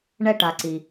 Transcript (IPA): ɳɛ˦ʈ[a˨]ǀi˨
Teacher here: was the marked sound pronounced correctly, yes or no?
yes